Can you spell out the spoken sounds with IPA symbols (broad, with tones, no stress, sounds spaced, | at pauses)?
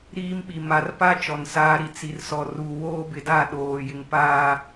ɾ iː˦ m ɓ i˨ m a˨ r p a˦ t͡ʃ ɔ˨ n s aː˦ ɾ i˨ t͡s i˨ r s ɔ˨ r u˨ w oː˦ b ɪ˨ d a˦˨ ɗ oː˨ j ɪ˨ ŋ p aː˨